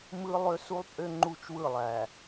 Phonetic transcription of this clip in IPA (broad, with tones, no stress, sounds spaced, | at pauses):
m ɯ˦ lˠ ø˦ s u˦ lˠ pʼ ø˦ ŋ͡ǃ u˦ t͡ʃ w ɯ˦˨ lˠ æ˨